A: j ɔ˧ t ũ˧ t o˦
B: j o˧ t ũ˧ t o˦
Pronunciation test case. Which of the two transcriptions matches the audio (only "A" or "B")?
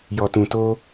A